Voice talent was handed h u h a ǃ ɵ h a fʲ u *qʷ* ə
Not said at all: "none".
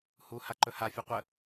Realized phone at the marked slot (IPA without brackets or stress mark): qʷ